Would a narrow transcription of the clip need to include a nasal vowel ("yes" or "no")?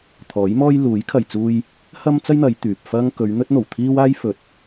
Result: no